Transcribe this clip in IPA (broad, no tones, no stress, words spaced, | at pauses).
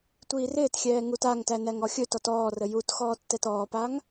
tʷiːrɪːtxʲɛː ŋutaŋtæ næŋɔxʲɵtɔt ɔːrə jutxɔː tːɛtɔːpaŋ